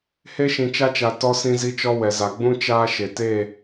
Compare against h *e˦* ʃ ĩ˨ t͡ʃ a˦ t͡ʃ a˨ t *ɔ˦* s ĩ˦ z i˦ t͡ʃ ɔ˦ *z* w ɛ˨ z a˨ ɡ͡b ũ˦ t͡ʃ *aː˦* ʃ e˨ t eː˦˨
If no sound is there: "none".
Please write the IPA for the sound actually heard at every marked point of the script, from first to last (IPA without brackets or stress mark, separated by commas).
e˦, ɔ˦, none, aː˦